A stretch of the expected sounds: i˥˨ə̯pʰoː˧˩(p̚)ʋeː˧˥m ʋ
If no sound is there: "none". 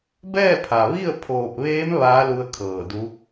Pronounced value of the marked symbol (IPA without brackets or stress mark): p̚